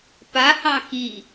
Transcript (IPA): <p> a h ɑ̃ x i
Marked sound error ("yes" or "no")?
no